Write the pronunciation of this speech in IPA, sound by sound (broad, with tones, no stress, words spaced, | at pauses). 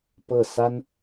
pɤ˥˩ sa˥n